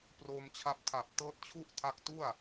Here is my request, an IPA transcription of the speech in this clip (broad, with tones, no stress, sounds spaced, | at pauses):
p r oː˧ m t͡ɕʰ a˦˥ p̚ tʰ a˨˩ p̚ t ɤː˦˥ t̚ t͡ɕʰ u˥˩ ʔ tʰ a˦˥ k̚ t u˥˩ a̯